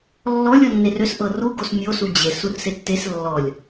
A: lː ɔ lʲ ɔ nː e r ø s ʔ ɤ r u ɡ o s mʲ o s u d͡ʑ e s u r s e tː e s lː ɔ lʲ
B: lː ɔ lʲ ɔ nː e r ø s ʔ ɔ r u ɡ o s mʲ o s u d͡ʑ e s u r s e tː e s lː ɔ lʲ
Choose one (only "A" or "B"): A